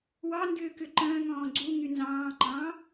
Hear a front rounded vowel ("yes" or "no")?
yes